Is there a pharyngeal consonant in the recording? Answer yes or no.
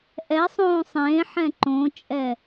yes